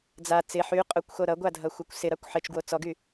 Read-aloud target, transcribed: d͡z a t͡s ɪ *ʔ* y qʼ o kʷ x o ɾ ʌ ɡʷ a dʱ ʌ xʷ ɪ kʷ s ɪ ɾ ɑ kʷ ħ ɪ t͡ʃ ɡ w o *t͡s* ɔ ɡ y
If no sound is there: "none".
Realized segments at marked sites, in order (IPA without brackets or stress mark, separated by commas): ħ, t͡s